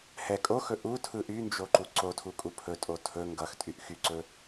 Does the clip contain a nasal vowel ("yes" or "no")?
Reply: no